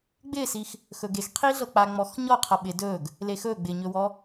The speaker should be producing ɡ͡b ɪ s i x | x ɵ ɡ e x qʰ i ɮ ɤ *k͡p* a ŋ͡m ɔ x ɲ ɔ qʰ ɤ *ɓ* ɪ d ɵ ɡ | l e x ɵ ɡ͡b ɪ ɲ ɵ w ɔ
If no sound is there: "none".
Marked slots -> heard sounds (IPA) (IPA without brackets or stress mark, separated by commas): k͡p, ɓ